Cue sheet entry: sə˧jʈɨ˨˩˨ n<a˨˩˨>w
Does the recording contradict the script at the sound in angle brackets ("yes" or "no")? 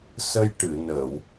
yes